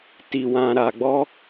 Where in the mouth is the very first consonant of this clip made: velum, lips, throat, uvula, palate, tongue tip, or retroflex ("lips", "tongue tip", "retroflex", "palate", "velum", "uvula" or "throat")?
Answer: tongue tip